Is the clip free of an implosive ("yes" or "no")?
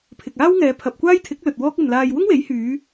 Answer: yes